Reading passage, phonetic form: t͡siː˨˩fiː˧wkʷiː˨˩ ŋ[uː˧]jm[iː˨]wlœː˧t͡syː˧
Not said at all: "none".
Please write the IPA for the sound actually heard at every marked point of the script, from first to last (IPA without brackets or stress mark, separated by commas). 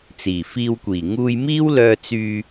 uː˧, iː˥